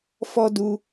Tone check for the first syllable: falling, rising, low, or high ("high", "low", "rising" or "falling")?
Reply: high